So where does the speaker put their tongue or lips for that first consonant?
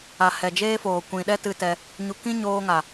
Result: throat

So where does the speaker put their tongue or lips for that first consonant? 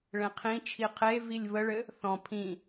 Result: retroflex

